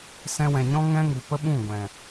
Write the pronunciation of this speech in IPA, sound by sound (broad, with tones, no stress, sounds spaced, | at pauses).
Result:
s ɛ̃˧ w ɛ̃˨ ɲ ɔ̃˦ ŋ ɛ̃˦ ŋ u˨ p ə˦ ɓ ũ˦˨ ɡʷ ɛ̃˨